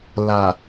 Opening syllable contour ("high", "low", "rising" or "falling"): low